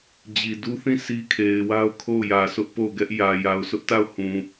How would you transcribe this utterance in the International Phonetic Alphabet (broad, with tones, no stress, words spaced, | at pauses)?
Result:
d͡ʑi˨du˦θĩ˦˨ sʰi˦kʰe˨ɪ̯wa˦ʊ̯kʰo˦˨ʊ̯ jä˨sʊ˦ʔ po˦˨ʊ̯ɡɛ˦ʔjä˨ ja˨ʊ̯sʊ˦ʔta˦˨ʊ̯ hũ˨